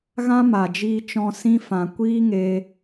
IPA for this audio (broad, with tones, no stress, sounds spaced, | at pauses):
ɣ ã˦ m a˨ d͡ʒ iː˧ t͡ʃ ɔ̃˧ s ĩ˦ f ã˨ kʷ iː˦ ŋ e˧